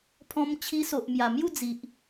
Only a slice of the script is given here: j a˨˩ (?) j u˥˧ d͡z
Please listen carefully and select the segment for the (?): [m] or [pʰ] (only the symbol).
m